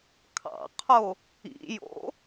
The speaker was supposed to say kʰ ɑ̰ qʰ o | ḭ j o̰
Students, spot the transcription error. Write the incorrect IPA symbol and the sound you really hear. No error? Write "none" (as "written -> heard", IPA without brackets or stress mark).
none